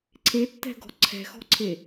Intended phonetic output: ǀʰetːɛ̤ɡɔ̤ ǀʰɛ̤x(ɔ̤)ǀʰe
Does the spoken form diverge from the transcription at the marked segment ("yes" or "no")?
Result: no